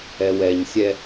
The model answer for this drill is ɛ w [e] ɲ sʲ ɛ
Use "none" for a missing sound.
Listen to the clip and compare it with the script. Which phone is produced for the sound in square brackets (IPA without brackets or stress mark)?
ɛ